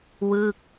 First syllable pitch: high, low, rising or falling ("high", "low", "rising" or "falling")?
falling